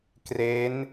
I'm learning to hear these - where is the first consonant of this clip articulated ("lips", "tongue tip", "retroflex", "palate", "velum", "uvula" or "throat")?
velum